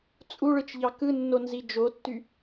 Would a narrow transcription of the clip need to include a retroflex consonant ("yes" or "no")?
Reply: yes